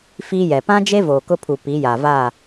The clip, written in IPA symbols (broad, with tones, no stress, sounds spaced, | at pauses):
f iː˦ j ɛ˨ p ã˦ d͡ʒ e˦ v oː˨ k ʊ˦ pʰ u˨ p i˨˦ j aː˨ v aː˦˨